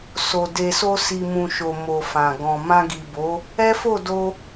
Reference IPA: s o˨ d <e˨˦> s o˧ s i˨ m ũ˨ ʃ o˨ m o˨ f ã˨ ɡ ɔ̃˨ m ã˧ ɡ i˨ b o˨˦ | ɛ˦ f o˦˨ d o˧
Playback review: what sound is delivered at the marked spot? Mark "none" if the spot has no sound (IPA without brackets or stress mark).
e˨